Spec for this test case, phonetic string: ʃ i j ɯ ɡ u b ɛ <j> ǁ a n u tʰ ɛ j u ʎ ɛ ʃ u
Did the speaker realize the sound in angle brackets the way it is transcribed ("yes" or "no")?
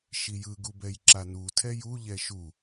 yes